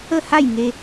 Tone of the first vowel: falling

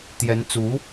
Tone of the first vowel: rising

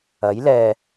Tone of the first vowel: rising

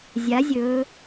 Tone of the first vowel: rising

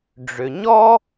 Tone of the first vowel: low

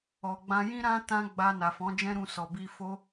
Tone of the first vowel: low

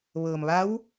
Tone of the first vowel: low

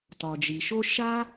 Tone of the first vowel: low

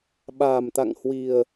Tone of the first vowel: low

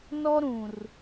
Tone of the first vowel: high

